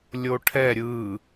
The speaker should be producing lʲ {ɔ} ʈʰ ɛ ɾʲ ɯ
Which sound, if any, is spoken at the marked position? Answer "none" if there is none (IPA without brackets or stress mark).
o